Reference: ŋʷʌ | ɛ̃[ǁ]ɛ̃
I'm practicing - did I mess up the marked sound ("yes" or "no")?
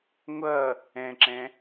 no